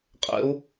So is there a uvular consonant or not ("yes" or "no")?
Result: yes